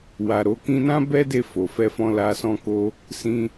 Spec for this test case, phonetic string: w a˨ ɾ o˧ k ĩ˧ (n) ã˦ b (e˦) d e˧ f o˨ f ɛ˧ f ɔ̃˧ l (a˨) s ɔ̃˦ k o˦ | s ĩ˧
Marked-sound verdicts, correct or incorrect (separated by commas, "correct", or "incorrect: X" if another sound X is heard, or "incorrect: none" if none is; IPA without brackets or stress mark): correct, incorrect: ɛ˦, incorrect: a˧